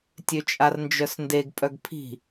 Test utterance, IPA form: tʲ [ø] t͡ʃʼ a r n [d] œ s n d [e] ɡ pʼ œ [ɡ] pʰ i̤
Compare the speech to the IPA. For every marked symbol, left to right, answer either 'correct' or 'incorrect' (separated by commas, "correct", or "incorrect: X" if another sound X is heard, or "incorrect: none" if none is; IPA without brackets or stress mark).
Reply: correct, incorrect: d͡ʒ, correct, correct